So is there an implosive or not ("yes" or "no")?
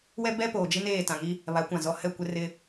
no